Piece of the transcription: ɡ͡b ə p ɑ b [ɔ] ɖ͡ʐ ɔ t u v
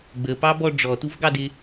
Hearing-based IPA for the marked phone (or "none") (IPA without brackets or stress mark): ɔ